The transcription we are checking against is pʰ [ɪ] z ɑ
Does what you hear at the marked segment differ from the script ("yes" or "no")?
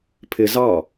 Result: no